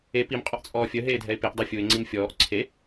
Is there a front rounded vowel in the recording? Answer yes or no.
yes